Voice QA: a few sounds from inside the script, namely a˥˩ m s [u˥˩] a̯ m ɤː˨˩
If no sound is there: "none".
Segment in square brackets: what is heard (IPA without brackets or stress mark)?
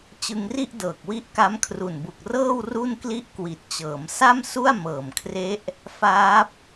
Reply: u˥˩